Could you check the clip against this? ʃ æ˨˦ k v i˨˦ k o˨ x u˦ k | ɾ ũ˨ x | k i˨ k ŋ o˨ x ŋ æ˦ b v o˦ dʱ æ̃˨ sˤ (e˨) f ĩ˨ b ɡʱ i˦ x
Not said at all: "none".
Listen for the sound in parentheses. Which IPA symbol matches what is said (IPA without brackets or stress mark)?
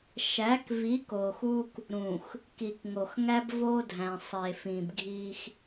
e˨